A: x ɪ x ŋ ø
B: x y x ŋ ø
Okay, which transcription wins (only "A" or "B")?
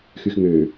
B